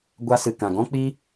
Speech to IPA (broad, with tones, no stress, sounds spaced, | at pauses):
ɡʷ a˧ s ɨ˨ k ã˨ ɡ ɔ̃˦ k͡p i˦